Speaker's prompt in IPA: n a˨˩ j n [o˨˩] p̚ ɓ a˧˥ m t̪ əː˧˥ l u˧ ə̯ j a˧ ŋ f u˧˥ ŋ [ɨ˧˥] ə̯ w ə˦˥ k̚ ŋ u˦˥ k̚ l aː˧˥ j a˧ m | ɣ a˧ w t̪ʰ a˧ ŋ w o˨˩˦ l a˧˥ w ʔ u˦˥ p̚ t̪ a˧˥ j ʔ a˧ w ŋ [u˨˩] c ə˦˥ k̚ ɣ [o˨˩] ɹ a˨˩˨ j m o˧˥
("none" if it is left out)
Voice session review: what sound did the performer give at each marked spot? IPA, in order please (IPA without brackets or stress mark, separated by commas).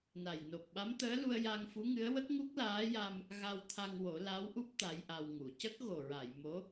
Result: o˨˩, ɨ˧˥, u˨˩˨, o˨˩